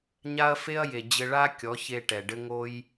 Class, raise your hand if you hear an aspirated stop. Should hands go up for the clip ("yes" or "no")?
no